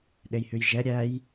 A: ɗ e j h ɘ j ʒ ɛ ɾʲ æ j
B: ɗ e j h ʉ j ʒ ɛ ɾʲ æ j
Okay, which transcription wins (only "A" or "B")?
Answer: B